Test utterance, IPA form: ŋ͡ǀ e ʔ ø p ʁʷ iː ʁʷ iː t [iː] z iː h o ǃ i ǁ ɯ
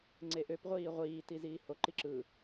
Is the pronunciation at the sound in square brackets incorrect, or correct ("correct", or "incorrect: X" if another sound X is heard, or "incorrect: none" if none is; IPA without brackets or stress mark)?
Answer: incorrect: i